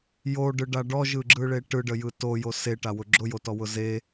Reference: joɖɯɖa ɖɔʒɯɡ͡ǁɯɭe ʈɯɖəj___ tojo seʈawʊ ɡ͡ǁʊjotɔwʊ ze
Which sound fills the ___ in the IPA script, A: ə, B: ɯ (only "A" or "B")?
B